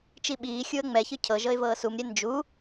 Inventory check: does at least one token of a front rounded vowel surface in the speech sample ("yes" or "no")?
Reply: no